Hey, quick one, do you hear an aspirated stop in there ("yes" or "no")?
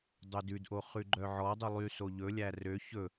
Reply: no